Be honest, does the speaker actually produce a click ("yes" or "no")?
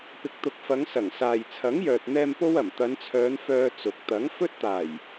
no